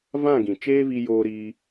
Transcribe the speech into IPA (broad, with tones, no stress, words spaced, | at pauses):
vã˦˨ɡĩ˨ t͡ʃeː˦vi˧joː˧ɾiː˧